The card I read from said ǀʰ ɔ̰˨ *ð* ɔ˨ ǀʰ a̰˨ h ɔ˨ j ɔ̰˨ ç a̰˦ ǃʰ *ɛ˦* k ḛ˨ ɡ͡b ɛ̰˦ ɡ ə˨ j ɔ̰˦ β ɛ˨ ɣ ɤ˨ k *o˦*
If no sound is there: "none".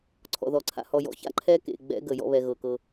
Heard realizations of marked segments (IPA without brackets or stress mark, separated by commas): ð, ɛ˦, ɤ˦